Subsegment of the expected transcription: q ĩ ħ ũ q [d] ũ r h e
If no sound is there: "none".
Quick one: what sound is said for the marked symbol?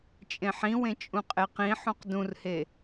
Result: d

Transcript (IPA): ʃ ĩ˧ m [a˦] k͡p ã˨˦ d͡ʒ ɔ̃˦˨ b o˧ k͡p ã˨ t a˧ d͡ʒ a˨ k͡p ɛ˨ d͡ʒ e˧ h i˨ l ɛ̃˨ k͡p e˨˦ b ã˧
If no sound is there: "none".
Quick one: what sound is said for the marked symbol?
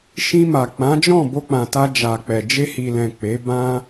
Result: a˨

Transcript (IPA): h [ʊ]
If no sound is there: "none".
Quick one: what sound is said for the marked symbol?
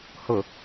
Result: ʊ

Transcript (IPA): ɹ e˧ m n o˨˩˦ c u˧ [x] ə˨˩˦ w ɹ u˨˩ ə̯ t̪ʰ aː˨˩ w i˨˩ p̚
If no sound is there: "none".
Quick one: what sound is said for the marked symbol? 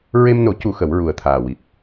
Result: x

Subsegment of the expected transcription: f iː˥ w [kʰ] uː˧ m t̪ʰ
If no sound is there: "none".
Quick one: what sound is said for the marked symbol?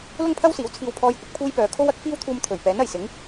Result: t̪ʰ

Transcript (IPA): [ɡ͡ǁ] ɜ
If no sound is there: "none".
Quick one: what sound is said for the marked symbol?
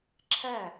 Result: ǁʰ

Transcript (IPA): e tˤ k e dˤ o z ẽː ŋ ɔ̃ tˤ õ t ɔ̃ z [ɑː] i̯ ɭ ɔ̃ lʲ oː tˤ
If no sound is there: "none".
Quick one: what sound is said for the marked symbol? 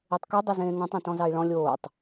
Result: ɑ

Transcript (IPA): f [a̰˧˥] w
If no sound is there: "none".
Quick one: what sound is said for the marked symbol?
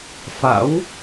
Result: a̰˧˥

